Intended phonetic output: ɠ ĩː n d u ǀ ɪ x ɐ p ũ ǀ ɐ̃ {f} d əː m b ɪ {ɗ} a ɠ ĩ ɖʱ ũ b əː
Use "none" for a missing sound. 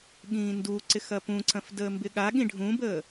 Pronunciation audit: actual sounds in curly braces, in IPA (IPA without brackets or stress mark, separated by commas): f, ɠ